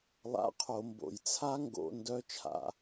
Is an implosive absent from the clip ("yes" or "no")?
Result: yes